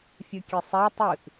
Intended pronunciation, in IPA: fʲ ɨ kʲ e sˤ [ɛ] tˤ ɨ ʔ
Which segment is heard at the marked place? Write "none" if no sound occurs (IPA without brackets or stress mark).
ɛ